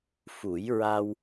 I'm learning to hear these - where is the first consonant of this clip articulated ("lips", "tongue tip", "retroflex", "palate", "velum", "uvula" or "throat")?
lips